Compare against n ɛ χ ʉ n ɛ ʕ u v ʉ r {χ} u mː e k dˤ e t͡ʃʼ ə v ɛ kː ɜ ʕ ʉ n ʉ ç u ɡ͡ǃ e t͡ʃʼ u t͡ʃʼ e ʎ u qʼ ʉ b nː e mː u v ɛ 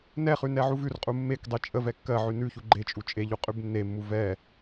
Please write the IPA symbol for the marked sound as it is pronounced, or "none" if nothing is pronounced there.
qʼ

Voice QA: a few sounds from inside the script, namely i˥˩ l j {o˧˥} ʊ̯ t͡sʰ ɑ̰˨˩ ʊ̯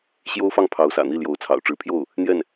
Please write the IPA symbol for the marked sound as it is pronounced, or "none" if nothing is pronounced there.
o˧˥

